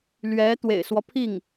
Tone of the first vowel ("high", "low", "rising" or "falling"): rising